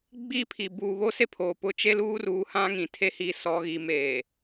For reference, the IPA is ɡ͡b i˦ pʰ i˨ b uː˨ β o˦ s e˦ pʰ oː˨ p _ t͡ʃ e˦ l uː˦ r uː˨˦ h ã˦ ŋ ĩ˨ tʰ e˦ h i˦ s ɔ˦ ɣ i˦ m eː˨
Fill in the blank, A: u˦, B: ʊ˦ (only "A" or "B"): B